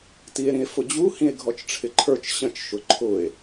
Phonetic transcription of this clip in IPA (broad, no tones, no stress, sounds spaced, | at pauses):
t i e̯ ɾ ĩ e̯ f ʊ d͡ʑ u h ĩ e̯ ɡʱ ɔ t͡ʃ ʈ͡ʂʰ ɪ ǃʰ ə˞ t͡ʃ ɕ ə̃ t͡ʃ ʃ ʊ ǃʰ ʊ e̯